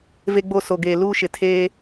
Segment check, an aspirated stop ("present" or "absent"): present